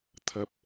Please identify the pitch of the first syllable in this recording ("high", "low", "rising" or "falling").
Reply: low